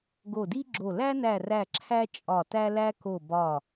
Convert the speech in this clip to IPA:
ɡo˧˩di˦ɡ͡ǁo˧˩ læ˦næ˧˩ræ˧˩ ǁʰæ˦ t͡ʃʼɒ˧˩tæ˦læ˦ ko˧˩ bɒ˧˩

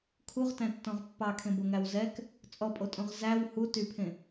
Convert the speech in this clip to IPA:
kʰuʁtæ̃tːɔ̃ʁ pːɑkʰẽboŋæw zɛk | t͡sʼɔpʼotʼõʁ zæw hu typʰẽ

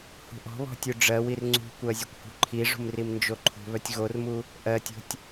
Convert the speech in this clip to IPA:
hṳʔɔ̤βɔ̤ tʲuɖ͡ʐɜwir ŋ͡ǀṳkʷɜ zʲœkʷhṳǃʰiʐṳm rimnd͡ʒoǃʰṳβœtʲ ɣormu | ʔɜtʲo̤tʲ

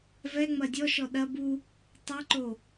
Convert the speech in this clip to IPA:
vɛŋ͡mɐ dʲɔʃɔ ɗɐ bu | tˤɛǃo

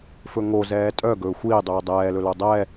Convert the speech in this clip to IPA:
fɵŋo zɛːtʼœ ɡɵːxʷiː dˤʉːdˤɛːlɵlo dˤɛ

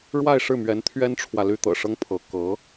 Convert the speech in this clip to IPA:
ɻwa˥˧ɪ̯ʂɻ̩˥˩mɥɛ˧˥n t̪ʰɥɛ˥nʈ͡ʂʰwä˨ ly˥t̪ɤ̰˨˩ʂɤ˥ŋpʰɤ˧˥ kɤ˧˥

